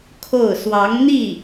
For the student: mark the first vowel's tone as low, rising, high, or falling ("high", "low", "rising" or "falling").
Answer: falling